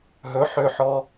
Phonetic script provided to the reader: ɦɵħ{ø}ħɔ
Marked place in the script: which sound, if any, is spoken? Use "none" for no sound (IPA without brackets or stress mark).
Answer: ø